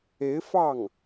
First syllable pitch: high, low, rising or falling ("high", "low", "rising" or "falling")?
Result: rising